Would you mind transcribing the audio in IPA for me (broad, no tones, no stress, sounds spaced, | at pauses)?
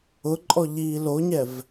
ʊ ǃʼ ɔ ʎ iː l o ɲ ɛ v